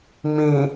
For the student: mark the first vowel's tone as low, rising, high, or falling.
low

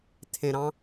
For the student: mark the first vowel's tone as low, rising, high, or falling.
high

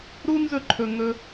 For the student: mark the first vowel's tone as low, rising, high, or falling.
high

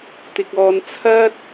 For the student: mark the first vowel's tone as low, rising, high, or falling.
low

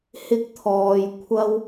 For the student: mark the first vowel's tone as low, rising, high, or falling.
high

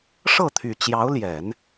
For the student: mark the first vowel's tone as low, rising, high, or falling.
falling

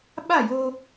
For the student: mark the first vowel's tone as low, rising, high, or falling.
falling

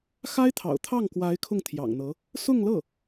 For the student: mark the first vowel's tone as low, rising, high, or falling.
high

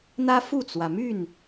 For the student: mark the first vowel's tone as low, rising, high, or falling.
high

